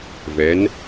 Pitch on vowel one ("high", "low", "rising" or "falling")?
rising